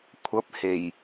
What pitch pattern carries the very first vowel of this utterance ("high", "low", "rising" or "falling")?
rising